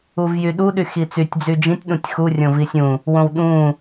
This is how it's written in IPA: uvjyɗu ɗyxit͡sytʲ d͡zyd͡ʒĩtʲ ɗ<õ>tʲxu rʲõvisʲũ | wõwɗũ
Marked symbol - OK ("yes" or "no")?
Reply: no